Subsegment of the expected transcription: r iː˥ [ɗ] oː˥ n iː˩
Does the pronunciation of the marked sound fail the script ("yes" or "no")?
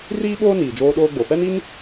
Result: yes